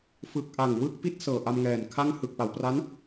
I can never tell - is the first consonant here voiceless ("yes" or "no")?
yes